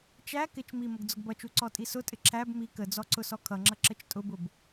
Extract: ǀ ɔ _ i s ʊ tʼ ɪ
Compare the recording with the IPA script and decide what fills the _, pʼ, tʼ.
tʼ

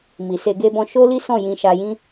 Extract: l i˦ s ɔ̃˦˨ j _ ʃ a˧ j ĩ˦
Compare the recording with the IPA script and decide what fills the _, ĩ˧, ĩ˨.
ĩ˧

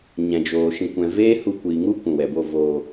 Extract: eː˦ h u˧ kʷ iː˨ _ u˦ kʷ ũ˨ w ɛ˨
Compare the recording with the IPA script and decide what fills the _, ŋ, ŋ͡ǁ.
ŋ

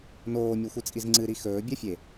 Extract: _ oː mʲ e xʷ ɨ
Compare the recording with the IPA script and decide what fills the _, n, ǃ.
n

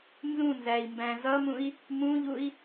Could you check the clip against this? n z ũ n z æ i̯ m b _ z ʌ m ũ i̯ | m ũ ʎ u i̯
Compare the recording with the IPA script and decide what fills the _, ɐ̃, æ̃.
æ̃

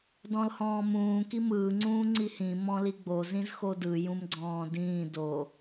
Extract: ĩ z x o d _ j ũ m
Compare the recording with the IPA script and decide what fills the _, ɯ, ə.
ɯ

